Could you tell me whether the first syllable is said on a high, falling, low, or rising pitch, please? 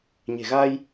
low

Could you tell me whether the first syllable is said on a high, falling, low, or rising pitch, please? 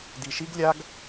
low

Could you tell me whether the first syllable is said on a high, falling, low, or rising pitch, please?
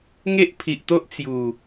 high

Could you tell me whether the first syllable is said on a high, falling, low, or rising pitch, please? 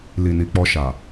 low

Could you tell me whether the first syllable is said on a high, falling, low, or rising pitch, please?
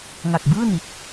low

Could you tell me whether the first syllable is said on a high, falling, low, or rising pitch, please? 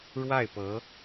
falling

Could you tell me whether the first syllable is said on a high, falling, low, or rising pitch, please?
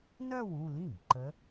falling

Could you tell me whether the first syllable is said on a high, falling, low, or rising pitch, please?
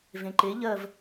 low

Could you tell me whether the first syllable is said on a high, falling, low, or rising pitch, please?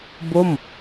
falling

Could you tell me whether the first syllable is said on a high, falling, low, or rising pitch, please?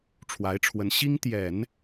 rising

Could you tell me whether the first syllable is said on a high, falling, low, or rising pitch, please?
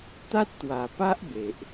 high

